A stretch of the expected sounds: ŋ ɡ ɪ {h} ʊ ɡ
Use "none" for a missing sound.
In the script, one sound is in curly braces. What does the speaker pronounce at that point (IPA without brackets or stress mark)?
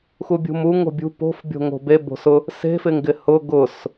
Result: h